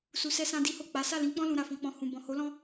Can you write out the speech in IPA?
s u˧ s ɛ˦ s ã˦ d i˦ h o˦˨ k͡p a˨˦ s a˦˨ l ĩ˨˦ k͡p ɔ̃˦ l ũ˧ ɾ a˧ f ɔ̃˧ k͡p ɔ̃˧ h ũ˨ b ɔ̃˨ h o˨˦ l ɔ̃˦

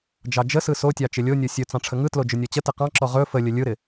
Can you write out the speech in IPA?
d͡ʒ ɑ d͡ʒ ə s ɯ s o tʲ ɑ t͡ʃ ɪ lʲ o nʲ o sʲ ɵ t͡s ɑ̃ ʈ͡ʂʰ ə ŋ ɯ t l o d͡ʒ ɵ nʲ ɔ t͡ɕ ə t ɪ q ɑ̃ ǁ ɔ ʁ ɵ f ə lʲ ə lʲ ɯ ɾ ɪ

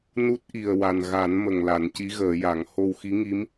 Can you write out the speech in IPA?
n u˦˥ t̚ ʔ i˨˩ ə̯ w a˨˩ n ɣ a˨˩˦ n m ə˨˩ ŋ l a˨˩˦ n c i˧˥ ɣ əː˨˩˦ j a˨˩˦ ŋ h o˧ w x i˧˥ ŋ i˧˥ m

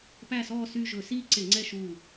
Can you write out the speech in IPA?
p æ˦˨ s ɔː˦˨ s y˦˨ ʒ ɵ˧˩˧ s iː˦˨ ǀ e˧˩˧ ŋ͡ǀ ɛ˦˨ ʃ u˦˨

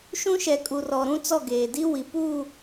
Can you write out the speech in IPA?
ʃ ũ˦ ʃ ɛ˨ kʼ u˨ r ɔ˨ ɾ ũ˦ t͡s ɔ˦˨ ɡ eː˨ d i˦ w i˨ p u˦˨

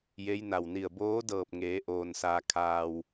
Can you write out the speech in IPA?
j e˧˥ j n a˧˩ w n i˧˩ ə̯ b oː˧˥ d ɤː˧˩ p̚ ŋ eː˩˧ ʔ oː˩ n s aː˩ kʰ aː˩ w

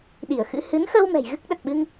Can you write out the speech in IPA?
ɗ i˧˩ ə̯ x ɨ̰˧˥ h ɨ˨˦ n x ə˧ w m ɛ̤˨˩ j ɣ ɨ˦˥ k̚ ɗ ə˨˩ t̚ ɓ ɨ˧ ŋ

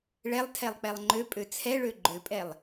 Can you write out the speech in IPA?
ɭ ɛ lˠ tʰ ɛ lˠ k͡p ɛ lˠ ŋ͡ǃ ø pʼ ø t͡sʰ ɛ ɭ ø ɡ͡ǃ ø pʼ ɛ lˠ

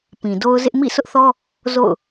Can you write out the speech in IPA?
p ĩ˨ d o˦ ʊ̯ z ɪ˦ ʔ m ḭ˦˨ sʰ ʊ˦ ʔ θ ɔ˦ | z o̰˦˨ ʊ̯

